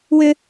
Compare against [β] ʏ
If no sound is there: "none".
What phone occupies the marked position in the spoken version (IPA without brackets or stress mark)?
w